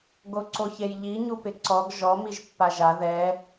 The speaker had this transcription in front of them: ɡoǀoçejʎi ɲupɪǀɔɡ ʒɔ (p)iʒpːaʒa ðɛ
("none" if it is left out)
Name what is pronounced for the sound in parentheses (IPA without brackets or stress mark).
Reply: m